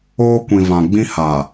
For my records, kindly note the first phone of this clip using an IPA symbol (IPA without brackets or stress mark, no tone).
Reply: oː